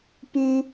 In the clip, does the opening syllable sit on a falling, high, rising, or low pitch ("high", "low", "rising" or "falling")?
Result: high